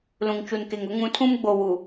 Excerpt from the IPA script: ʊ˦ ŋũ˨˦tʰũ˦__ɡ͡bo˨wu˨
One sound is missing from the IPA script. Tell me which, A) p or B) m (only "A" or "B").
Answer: B